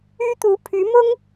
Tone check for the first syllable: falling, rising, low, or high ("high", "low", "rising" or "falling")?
high